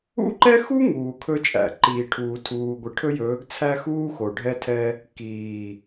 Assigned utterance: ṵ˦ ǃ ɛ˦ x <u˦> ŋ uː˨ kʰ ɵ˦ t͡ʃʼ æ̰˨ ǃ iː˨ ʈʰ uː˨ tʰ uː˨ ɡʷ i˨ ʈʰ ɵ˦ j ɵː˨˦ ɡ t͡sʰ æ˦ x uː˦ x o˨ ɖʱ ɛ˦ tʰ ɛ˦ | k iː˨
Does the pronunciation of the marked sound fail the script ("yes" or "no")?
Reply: no